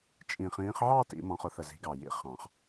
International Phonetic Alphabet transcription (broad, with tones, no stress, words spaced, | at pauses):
t͡ʃʼĩ˨˩χĩː˨˦χʕɑ˥˧ tḭ˨˩˦ mɔ̃˨˦χʊ˨˩˦θə˨˩ zi̤˨˦ɡɑ˨˩ jḭ˨˦ χɑ̃˨˩˦χ